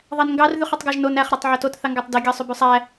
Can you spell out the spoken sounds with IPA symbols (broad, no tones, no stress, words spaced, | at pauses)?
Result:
ðˤænŋɡɑr ðyχɛtˤɡɑʒnon æχ ɾætˤʕotot θɑŋɡætˤdi ɡʲɑsˤybʉsˤæ